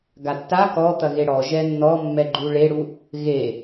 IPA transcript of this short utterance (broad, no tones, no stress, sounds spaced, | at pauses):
ɡ a tː a k ɔ t̪ ɐ ɣ e ɽ ɔ ʒ ɛ nː ɔ mː ɛ ɡ͡ǃ u ɭ e ɽ u | ɣ e